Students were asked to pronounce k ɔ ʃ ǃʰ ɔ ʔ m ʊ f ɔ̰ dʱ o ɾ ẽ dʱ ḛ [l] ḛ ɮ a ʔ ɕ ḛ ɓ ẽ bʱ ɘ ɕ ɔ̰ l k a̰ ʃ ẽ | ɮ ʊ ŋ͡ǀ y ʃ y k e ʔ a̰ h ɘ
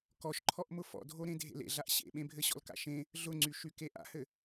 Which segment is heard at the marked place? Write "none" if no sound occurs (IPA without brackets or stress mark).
l